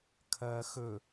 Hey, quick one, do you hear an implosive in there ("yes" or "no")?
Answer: no